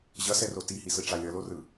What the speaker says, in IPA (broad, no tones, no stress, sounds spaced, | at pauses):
ʑ ʌ s ɛ r o t i h i s ɯ ʈ͡ʂ a lʲ ʌ l o r ɯ